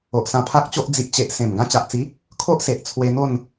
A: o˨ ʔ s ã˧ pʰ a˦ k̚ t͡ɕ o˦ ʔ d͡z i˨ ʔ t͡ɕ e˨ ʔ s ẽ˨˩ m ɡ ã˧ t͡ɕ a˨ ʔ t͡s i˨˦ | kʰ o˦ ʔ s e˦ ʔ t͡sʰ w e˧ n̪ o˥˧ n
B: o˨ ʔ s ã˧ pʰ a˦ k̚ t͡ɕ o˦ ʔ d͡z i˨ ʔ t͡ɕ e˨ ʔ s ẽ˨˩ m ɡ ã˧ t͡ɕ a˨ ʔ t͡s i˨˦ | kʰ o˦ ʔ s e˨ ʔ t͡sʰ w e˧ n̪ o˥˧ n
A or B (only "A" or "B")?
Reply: B